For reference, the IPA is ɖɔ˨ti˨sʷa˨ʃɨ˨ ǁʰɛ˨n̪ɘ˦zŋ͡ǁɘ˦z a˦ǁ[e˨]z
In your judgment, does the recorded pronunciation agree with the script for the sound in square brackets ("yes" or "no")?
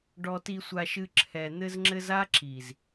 no